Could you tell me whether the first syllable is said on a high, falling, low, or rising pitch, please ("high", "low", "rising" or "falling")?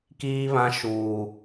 high